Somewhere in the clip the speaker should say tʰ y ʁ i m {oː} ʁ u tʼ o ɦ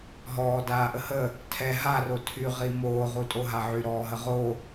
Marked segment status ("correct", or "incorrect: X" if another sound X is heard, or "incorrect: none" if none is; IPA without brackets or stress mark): correct